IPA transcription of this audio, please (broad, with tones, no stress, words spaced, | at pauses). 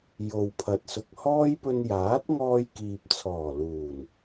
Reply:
jo˨wpʰɐ˨˥t̚sʊ˨k̚ hɔː˥jpɵ˧n jaː˨˥t̚ŋɔː˧jkiː˨p̚t͡sʰɔː˨˩ luː˨˩n